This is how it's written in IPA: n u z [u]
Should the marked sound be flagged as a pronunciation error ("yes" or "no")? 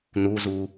no